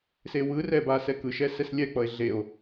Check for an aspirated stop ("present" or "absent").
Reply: absent